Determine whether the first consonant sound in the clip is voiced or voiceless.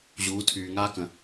voiced